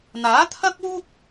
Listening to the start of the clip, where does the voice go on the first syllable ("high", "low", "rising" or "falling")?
rising